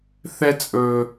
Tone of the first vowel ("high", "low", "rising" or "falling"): high